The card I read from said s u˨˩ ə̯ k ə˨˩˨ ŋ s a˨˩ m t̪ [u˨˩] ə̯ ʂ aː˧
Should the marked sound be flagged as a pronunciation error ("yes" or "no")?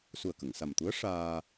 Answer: yes